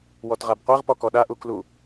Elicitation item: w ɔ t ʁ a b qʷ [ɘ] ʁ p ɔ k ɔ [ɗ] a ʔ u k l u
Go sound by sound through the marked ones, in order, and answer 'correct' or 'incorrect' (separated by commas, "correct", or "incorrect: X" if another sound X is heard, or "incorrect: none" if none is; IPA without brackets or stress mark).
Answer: incorrect: e, correct